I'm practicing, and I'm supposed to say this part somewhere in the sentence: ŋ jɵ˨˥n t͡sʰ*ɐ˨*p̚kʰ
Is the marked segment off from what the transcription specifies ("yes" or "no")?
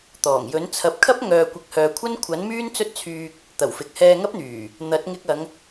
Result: no